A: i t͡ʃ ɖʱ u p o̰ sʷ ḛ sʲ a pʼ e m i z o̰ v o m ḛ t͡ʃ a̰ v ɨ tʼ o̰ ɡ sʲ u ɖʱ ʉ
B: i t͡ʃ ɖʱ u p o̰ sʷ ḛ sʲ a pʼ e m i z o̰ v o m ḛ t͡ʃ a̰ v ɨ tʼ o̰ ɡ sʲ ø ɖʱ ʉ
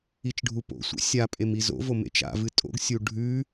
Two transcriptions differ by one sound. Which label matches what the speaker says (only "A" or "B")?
A